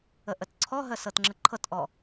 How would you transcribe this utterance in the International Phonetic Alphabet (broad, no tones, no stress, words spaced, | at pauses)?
əʔətǀʰɔɦə sɤtŋ͡ǁəǃʰɤtʔɔ